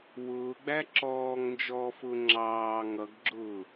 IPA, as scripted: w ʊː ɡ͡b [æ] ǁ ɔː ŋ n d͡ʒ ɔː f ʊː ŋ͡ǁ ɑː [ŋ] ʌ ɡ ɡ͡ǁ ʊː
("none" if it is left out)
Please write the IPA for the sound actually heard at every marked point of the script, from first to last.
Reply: æ, ŋ

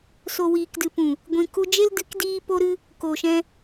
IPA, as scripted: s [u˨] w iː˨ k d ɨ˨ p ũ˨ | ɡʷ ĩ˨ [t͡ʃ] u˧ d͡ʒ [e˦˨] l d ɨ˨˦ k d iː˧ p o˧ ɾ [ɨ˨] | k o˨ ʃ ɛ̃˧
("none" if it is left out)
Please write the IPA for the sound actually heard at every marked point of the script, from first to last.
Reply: o˨, k, e˦, ɨ˧

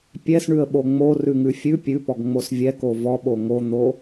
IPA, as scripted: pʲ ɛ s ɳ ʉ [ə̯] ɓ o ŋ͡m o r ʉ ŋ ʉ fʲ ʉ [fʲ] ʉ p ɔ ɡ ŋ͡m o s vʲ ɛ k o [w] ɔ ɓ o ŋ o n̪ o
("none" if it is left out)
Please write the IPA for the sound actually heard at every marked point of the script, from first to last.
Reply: ə̯, pʲ, v

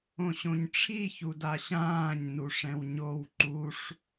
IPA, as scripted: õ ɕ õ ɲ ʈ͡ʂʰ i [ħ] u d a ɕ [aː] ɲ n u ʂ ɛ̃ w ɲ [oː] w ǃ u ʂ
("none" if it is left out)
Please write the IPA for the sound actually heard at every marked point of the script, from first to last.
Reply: ç, ãː, o

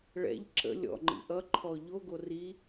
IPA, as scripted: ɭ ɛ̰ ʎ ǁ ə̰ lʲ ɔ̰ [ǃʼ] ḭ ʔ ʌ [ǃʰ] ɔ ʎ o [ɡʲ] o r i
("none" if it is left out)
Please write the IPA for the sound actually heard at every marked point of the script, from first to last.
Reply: ŋ͡ǃ, ǃʰ, ɡ

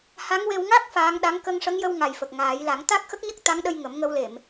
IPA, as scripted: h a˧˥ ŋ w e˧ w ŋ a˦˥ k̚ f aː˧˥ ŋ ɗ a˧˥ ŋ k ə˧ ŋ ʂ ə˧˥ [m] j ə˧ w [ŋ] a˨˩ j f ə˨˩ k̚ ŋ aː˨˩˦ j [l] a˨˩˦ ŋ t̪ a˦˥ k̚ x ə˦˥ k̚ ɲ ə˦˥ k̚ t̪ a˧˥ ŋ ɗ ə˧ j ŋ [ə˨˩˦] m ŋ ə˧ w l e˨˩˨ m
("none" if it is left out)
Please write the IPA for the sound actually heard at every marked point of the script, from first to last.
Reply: ŋ, ŋ, l, ə˨˩˦

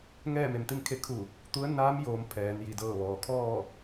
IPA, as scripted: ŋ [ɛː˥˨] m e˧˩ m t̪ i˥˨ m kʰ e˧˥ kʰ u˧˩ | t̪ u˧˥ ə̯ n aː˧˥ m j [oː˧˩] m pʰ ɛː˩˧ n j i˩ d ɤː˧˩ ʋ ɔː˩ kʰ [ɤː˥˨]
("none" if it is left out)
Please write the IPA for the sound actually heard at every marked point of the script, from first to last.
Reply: ɛː˥˨, oː˩˧, ɔː˥˨

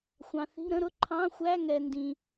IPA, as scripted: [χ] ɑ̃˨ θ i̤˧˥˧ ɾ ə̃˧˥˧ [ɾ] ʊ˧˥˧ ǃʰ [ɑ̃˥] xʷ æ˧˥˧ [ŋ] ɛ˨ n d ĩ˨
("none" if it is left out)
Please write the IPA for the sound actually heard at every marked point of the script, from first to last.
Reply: xʷ, ɾ, ɑ̃˧˥˧, ŋ

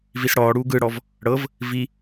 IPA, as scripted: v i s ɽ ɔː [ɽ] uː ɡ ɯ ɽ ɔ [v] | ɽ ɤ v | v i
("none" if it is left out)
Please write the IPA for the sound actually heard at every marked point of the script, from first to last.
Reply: ɽ, v

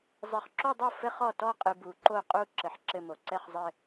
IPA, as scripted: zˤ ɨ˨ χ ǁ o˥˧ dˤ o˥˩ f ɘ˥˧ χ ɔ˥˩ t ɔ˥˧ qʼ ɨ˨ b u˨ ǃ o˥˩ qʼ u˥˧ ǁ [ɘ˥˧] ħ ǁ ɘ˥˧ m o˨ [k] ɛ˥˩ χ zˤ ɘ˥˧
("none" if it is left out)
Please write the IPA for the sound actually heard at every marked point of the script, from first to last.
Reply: ɘ˨, ǀ

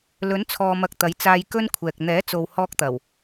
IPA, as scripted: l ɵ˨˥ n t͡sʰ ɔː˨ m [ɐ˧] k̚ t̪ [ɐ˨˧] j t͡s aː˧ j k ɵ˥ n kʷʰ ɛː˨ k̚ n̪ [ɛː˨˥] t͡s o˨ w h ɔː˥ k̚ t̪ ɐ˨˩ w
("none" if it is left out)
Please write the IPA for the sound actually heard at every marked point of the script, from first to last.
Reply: ɐ˨, ɐ˨˥, ɛː˨˥

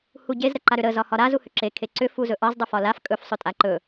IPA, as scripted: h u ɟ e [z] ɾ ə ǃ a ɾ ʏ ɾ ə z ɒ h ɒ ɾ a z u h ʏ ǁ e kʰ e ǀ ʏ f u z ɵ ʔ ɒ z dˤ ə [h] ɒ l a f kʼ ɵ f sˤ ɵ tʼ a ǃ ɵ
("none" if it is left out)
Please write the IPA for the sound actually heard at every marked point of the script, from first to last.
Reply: z, f

